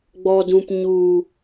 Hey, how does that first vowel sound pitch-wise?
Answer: low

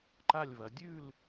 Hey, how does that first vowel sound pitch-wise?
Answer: falling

